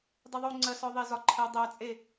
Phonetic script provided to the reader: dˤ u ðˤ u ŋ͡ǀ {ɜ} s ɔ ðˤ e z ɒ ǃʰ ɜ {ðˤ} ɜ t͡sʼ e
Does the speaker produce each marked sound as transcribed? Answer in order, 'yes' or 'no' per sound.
yes, no

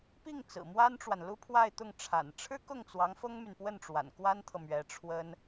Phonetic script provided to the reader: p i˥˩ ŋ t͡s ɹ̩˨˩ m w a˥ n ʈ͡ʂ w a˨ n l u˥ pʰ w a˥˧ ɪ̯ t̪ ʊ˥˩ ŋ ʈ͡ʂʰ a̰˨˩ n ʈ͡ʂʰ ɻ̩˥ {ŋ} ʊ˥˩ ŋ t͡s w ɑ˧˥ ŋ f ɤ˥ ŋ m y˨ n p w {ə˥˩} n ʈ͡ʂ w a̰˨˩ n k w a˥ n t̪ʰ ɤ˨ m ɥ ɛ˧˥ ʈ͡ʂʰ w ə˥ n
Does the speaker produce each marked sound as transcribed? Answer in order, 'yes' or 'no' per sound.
no, yes

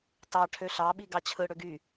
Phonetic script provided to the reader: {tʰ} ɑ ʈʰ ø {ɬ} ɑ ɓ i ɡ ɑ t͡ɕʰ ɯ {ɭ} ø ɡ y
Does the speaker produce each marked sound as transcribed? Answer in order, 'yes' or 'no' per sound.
no, yes, no

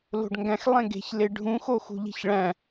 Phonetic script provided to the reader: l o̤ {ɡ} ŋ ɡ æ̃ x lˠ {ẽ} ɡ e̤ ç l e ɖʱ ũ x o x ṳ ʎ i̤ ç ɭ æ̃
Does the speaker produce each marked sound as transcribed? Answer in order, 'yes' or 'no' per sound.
no, yes

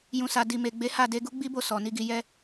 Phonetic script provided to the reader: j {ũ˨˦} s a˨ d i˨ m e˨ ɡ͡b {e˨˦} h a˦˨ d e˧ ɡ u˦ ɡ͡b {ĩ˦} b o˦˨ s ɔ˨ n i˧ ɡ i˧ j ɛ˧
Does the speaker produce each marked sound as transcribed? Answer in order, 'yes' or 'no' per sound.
no, yes, no

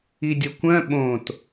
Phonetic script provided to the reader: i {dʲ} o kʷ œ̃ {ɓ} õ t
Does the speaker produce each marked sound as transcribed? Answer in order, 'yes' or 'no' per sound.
yes, yes

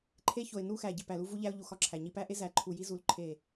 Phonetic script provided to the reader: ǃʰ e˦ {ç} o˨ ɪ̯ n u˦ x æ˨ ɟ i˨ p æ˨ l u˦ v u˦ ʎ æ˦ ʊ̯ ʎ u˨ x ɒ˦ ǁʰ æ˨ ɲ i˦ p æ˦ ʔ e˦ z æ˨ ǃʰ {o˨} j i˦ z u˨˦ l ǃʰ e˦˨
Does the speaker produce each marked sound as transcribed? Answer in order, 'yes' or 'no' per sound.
yes, no

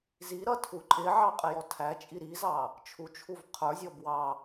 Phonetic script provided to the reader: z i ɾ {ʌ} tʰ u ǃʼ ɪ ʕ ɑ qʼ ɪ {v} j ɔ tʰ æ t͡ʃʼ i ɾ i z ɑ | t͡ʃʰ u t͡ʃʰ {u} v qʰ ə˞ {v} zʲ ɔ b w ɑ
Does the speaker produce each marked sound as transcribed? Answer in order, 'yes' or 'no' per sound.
yes, no, yes, no

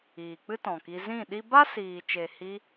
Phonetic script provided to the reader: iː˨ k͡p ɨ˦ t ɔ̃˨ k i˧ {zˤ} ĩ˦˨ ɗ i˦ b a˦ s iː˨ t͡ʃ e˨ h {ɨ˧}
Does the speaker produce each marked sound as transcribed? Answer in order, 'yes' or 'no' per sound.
no, no

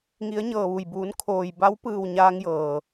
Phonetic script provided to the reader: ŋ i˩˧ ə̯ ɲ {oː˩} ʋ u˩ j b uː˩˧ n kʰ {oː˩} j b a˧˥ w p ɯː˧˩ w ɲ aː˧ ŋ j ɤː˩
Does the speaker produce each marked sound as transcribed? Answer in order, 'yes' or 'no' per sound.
no, yes

